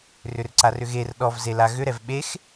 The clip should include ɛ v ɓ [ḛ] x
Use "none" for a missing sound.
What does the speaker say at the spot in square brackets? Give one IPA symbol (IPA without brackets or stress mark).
e